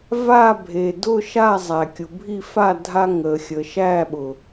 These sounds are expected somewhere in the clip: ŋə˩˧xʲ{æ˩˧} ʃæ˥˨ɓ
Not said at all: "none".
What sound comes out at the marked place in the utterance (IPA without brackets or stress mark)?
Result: ə˩˧